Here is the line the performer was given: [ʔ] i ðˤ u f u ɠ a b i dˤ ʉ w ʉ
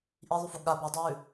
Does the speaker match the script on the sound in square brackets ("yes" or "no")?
yes